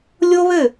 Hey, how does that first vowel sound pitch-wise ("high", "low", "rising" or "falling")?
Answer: high